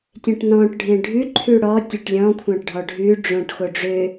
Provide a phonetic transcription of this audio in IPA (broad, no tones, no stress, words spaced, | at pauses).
tʲẽʈnɔ̃ʈ ɖʱẽɖʱʉǃʰʉ ɽɔ tʲɵʈlʲɔ̃kʷʰɑ̃ʈɖʱɔ ɖʱʉ ɖ͡ʐõʈ xoɖ͡ʐø